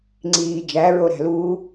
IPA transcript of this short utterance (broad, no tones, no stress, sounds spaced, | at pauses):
ŋ͡ǀ iː d͡ʒ æ ɹ o ɾ æ̤ l uː